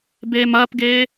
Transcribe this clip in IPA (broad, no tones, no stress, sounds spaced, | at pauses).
b eː m ɐː p ɡ eː